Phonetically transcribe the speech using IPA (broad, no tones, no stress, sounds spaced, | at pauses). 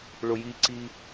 ɭ ʊ j i ǀ i